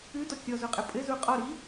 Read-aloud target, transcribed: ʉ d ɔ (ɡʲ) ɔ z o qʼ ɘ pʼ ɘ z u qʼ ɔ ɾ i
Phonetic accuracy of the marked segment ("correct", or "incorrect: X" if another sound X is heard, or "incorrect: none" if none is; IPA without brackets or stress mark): incorrect: kʲ